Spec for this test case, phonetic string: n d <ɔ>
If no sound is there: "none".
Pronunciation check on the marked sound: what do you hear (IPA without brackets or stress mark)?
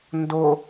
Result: o